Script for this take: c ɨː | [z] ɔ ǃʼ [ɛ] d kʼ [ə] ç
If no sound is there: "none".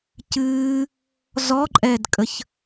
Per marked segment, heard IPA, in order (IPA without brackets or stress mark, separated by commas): z, ɛ, ə